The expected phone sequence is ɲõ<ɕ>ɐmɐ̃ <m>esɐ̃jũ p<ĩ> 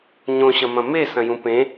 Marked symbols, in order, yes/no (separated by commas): yes, yes, no